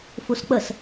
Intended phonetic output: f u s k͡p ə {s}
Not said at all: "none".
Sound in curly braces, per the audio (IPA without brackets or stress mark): s